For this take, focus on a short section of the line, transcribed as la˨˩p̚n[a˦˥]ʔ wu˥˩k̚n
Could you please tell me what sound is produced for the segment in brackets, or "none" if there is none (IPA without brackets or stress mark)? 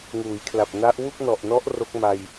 a˦˥